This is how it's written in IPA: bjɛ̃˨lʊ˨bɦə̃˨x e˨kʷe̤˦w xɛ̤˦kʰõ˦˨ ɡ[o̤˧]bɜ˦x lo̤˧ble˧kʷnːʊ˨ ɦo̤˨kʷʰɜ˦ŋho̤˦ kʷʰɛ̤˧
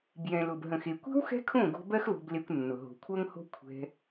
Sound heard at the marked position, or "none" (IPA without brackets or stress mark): o̤˧